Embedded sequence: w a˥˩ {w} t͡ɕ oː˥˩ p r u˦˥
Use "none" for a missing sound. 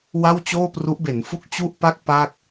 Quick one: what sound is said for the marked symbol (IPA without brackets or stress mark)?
w